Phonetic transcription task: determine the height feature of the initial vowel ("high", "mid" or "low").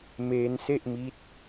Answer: mid